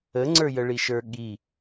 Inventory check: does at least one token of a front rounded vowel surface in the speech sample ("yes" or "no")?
no